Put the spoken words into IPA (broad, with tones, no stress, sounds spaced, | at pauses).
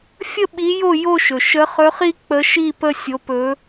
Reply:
fʲ ə˥˧ ɓ i˧˥ j o˥˧ j o˥˧ ʃ ɵ˩ ʃ ə˧˥ χ ɵ˧˥ χ i˥ k͡p ə˧˥ ʃ i˥˧ p ə˥ sʲ o˧˥ p ɵ˧˥